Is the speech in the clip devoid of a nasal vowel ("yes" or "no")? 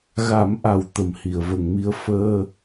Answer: yes